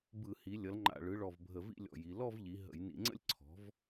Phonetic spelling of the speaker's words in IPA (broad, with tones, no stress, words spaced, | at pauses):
bɯ˧˩˧hi˩˧ lʲʌ˩˧lŋ͡ǃa̰˨˩ɭɯ˩˧ɭɔ˨˩v bʱə˧˩˧vḭ˥˧lʲɔ̰˨˩ji˩˧ lɔ˥˧vʎi˩˧ ɦə̰˧˩˧jnḭ˧˩˧ŋ͡ǀə̰˥˧lʲ ǀʰɔ̤˩˥v